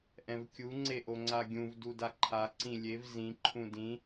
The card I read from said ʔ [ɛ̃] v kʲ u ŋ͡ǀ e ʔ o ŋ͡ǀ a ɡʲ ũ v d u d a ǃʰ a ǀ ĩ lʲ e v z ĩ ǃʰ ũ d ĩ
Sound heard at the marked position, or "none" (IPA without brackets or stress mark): ɛ̃